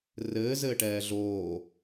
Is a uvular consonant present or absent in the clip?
absent